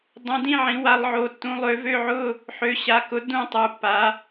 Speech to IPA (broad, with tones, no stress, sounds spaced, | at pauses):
dˤ ũ˨˦ d ĩ˥˧ ʕ ĩ˨˦ w a˨˦ lˠ ʕ o˩˧˩ tː ũ˨˦ lˠ ø˨˦ v ø˥˧ ʕ ʊ˥˧ | ħ ø˨˦ ɕ a˩˧˩ k ʊ˨˦ d ũ˥˧ tˤ u˩˧˩ pː a˨˦